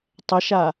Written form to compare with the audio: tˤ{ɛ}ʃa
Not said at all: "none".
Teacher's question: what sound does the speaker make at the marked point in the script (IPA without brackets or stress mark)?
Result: ɛ